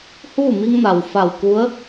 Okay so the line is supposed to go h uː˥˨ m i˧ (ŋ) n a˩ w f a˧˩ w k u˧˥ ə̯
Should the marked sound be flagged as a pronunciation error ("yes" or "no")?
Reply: no